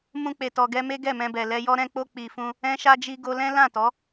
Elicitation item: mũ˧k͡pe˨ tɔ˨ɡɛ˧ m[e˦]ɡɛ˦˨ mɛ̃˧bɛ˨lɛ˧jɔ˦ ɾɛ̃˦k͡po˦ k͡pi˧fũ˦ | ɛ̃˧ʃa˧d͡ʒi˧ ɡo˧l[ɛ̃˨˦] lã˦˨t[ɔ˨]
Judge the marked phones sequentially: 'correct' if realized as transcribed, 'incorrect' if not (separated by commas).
correct, incorrect, incorrect